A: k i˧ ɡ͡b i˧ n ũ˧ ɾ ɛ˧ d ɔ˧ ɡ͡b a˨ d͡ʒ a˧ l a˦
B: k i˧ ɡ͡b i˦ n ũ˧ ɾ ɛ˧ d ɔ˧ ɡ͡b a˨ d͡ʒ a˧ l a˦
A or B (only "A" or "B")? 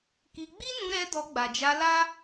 B